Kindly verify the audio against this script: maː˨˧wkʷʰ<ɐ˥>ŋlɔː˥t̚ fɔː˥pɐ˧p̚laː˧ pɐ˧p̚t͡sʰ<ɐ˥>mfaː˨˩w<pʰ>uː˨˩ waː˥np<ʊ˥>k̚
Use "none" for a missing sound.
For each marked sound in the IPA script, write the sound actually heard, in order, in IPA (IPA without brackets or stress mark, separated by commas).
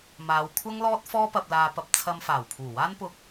ɐ˥, ɐ˧, pʰ, ʊ˧